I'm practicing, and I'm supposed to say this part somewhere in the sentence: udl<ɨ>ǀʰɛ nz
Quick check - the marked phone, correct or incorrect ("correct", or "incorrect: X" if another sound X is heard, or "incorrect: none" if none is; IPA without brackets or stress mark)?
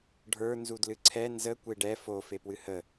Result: correct